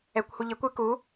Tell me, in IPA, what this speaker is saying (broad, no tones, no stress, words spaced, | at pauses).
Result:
ɛkʷhuʎɪkʷ ɪ ku